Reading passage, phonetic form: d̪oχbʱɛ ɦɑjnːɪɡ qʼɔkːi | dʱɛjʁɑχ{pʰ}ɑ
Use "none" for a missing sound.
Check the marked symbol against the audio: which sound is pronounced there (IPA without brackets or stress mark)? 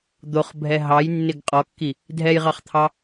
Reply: t̪ʰ